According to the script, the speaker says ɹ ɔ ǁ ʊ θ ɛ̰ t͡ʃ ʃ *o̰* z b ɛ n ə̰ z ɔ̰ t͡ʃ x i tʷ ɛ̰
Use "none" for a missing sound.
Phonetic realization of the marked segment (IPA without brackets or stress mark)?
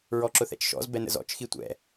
ɔ̰